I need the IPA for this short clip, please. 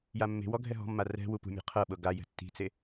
j a mː e̤ w ɔ ɡʱ ɛ ɦ ɔ̤ mː a r ɛ̤ w u p ṳ mʲ e̤ qʰ ɤ ɓ ɤ ɡ a j ɛ̤ tː i̤ t͡s e

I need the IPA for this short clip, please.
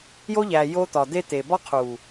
j o˦ ʎ æ˨ j o˦ t̪ ɒ˨ d̪ e˦ t̪ e˨ b ɒ˦ qʰ u˨

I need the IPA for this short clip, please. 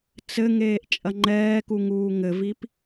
t͡s ɘ ŋ eː ʔ t͡ʃʼ ɐ ŋ͡ǃ ɛː k u ŋ uː ŋ ɘ v i p

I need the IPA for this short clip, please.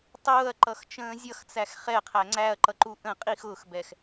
tˤ ʊː ɐ̯ ǃ ʌ x t͡ʃ ə̃ː zʲ ʌ x t͡s æ x χ ɛ qʰ æ ŋ͡ǀ æ ɐ̯ ǃ ʌ ǃ u ʔ ə̃ qʼ i x ʊː x b ɛ x

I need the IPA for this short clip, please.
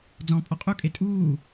d͡z ɔ̃ pʼ ɔ qʼ u kʼ e tʼ uː

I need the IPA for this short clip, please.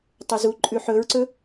tˤ ɵ z u ǃʼ ʉ ħ ɵ ɹ ǀ ɵ

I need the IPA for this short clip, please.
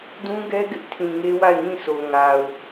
d ũ˦ ɡ ɛ˦ ɡ ɪ˦ ʔ tʰ ĩ˨ ŋ e˦ w a˦˨ ɪ̯ ŋ ĩ˦˨ s o˨ ŋ a˨ ʊ̯

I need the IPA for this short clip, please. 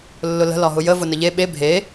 lː ʊ l ə̤ l ɒ ɦ ʊ j ə v ʊ n ə ʎ e ɓ e bʱ e

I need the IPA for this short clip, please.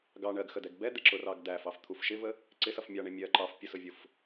ɡ ɑ ɳ ɜ ɡ x ə d ɛ ɡ b ɛ d̪ ɪ ǁ ʊ r ɑ ɡ d æ f ɑ f t̪ʰ u f ʃ ɪ v ə | ǀ ɪ s ʌ f mʲ ɑ ɳ ɪ mʲ ɜ ǃ ɑ f pʲ ə s ʊ vʲ ʊ f

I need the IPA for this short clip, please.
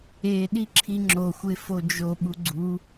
e ɗ i ǁʰ i ŋ͡ǁ o xʷ e f o d͡ʒ o ɓ u ɡ͡ǀ u

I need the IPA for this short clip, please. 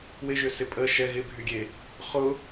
w ɪ ʒ ʏ s ɪ pʼ ə ʃ ɛ ɣ ɪ bʱ y ɡʲ e | χ ʊ

